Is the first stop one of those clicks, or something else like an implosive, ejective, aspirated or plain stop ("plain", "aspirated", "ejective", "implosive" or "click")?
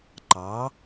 click